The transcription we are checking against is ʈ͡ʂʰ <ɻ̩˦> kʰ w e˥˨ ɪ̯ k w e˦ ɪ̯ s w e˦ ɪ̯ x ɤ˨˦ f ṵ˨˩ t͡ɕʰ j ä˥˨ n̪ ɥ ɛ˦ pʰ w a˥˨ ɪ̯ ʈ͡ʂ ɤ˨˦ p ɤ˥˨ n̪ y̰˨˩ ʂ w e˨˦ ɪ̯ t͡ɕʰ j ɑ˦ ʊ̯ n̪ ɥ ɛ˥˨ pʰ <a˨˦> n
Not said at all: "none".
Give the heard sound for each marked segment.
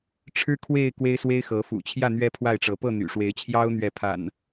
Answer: ɻ̩˦, a̰˨˩

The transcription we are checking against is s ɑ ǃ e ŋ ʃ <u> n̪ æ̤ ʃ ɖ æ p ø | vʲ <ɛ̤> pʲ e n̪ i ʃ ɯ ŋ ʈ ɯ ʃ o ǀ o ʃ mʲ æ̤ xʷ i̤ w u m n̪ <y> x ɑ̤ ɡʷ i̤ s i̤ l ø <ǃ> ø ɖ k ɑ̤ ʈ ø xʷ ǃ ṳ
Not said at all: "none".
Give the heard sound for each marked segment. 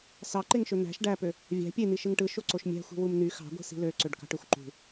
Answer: ø, æ̤, y, ǀ

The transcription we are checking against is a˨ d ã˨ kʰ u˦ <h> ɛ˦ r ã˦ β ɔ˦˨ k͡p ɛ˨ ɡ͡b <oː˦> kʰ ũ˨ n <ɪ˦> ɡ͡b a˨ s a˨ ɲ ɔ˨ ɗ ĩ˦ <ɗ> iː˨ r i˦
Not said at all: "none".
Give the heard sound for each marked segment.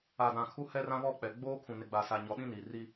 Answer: h, oː˦, ɪ˨, n

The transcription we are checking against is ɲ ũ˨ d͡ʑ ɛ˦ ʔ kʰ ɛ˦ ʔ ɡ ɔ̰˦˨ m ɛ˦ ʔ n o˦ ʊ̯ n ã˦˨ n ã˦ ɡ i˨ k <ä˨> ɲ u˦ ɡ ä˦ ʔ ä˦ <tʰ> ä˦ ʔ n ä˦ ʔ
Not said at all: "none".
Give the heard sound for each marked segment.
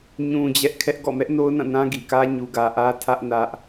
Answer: ä˦, tʰ

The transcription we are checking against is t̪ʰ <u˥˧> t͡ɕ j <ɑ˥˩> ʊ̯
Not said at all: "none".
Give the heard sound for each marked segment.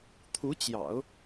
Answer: u˧˥, ɑ̰˨˩˦

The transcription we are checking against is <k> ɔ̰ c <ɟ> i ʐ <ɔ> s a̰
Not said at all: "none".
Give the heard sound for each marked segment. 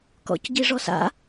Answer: k, ɟ, ɔ

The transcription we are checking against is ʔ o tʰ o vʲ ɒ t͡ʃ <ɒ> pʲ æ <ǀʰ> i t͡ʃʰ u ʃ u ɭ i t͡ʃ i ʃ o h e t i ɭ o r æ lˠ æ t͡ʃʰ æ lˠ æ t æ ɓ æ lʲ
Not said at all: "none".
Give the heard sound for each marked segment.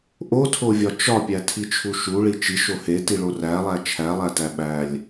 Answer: ɒ, tʰ

